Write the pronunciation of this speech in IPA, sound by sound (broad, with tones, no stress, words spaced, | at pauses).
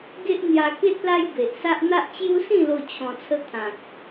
ɡe˦ʔ n̪ja˧ke˦t̚ la˦j be˨ʔsa˦ʔ n̪a˦ʔ t͡ɕju˦sĩ˥˧lo˧ t͡ɕʰɔ̃˧t͡sʰə˦ t̪ʰã˨k̚